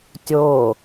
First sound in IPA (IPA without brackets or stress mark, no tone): tʲ